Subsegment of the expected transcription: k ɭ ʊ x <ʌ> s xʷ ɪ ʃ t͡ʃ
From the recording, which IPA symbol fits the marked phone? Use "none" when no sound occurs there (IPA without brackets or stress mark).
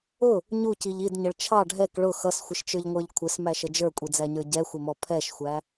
ʌ